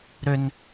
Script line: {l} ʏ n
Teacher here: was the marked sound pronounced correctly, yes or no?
no